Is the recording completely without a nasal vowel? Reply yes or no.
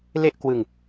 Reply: yes